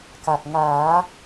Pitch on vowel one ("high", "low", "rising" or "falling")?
low